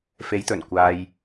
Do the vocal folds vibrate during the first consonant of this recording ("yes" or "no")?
no